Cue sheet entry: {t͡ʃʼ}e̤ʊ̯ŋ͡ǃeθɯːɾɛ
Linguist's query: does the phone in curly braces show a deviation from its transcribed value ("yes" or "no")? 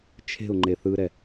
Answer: yes